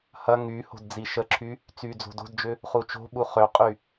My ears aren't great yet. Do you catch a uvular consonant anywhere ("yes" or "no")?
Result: yes